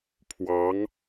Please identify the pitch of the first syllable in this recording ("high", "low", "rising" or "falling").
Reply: rising